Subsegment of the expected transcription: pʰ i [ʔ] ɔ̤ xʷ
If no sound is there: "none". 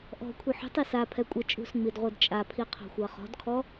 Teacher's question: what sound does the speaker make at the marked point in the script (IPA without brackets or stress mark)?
qʰ